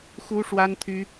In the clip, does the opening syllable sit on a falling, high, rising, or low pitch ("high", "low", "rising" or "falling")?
high